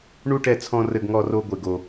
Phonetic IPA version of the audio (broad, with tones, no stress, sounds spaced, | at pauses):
ɳ u˥ ʈ ɛ˧ t͡sʰ ɔ̃˧ r ɘ˧ ɡ ŋ ɔ˧ r o˧ ɡʷ e˩ ɡ o˩